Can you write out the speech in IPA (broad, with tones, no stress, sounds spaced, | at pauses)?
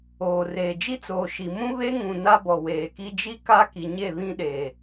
oː˨ r eː˨ d͡ʒ i˦ t͡s oː˨ ʃ i˨ m ũ˦ β e˦ ŋ ũ˨ n a˦ b ɔ˨ w eː˨ k i˦ d͡ʒ i˦ k a˦ k i˨ ɲ e˦˨ β ĩ˦ ɗ e˨